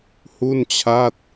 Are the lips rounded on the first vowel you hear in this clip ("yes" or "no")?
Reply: yes